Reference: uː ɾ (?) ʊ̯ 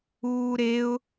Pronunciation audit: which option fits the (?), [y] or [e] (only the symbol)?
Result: e